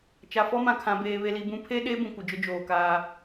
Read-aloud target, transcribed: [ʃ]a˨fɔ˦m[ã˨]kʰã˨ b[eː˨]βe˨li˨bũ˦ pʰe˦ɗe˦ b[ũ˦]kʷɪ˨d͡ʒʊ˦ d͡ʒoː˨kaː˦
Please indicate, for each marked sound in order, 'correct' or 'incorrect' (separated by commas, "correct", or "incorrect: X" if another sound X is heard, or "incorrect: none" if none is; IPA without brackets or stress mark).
incorrect: t͡ʃ, correct, correct, incorrect: ũ˨